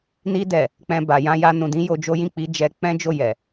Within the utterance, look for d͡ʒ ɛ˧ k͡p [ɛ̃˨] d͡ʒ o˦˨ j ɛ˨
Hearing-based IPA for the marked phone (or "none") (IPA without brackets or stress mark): ɛ̃˦